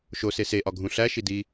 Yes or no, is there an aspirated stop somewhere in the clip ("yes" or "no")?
no